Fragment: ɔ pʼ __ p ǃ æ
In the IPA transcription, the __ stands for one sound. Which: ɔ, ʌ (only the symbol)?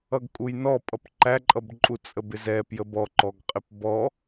ʌ